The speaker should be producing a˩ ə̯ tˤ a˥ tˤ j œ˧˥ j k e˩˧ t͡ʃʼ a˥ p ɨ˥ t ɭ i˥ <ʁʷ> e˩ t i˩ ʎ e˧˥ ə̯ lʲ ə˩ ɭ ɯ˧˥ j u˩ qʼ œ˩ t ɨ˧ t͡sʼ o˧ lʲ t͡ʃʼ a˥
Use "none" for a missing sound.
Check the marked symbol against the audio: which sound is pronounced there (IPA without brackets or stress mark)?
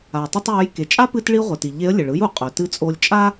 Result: ʁʷ